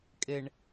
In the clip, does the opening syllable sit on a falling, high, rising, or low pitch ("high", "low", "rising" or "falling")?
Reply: low